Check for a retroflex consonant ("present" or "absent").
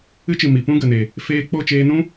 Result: absent